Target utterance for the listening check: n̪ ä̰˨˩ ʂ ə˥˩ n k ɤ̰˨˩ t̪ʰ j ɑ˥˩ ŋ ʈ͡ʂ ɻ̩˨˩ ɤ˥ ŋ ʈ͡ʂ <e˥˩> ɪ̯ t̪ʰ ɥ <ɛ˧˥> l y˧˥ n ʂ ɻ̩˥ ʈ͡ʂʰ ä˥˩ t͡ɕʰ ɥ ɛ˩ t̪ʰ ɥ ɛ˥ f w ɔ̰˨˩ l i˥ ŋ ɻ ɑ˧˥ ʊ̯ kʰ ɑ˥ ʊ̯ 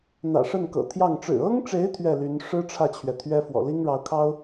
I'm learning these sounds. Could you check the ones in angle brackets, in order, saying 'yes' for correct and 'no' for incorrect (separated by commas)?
no, no